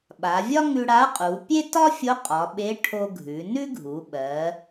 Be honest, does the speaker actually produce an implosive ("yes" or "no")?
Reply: yes